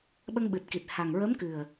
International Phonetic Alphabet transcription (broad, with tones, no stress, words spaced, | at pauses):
ɓə˧ŋɓɨ˨˩t̚ki˨˩t̚ ha˨˩ŋɹə˧˥mkɨ˨˩ə̯